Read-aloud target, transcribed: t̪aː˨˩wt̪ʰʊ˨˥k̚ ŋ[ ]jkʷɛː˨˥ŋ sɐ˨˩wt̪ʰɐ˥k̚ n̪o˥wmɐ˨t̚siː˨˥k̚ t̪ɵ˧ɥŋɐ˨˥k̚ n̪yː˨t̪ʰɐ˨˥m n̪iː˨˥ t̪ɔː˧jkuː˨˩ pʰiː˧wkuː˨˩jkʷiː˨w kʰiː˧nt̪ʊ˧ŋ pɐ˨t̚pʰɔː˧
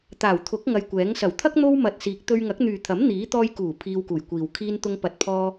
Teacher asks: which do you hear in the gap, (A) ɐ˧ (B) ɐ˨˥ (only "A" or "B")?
A